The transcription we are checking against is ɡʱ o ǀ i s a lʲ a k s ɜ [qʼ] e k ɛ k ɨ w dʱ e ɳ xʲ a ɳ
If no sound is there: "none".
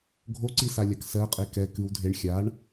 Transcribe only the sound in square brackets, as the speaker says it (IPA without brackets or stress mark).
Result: qʼ